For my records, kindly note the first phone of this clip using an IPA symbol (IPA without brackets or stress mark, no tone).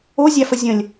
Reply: o